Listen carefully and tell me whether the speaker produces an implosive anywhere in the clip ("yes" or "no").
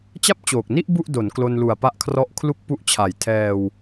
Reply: no